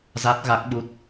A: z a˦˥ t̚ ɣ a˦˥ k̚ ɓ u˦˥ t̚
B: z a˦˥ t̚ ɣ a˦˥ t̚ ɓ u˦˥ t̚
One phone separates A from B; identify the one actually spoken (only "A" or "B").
A